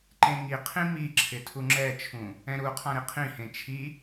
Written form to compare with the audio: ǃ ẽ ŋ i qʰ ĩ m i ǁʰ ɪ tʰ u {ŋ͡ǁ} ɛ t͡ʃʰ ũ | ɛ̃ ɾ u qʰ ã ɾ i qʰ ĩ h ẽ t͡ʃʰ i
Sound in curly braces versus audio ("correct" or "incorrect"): correct